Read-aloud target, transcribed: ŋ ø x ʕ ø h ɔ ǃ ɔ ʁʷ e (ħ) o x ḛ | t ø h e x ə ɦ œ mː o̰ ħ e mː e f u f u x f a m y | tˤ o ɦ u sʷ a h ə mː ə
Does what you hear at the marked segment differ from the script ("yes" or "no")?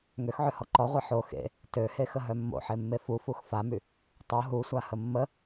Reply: no